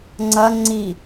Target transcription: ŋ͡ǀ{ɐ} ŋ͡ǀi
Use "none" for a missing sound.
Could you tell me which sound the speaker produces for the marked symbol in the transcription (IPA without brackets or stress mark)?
ɐ